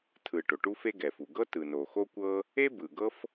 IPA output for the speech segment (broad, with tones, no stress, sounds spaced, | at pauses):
tʰ ɯ˩ ʈ o˩ ʈ u˥ f e˥ ɡ ɛ˩ f u˩ ɡ ɤ˥ t ɯ˩ n o˩ x o˥ kʷ ɤ˥ | e˥ b ɯ˩ ɡ ɤ˥ f